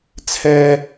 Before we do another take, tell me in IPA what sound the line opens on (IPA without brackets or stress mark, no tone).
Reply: t͡sʰ